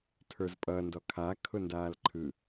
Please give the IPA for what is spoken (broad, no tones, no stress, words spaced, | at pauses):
tʰə˞zpʼʌː ndɔkʰa kʰʊndaːlǃʰɯ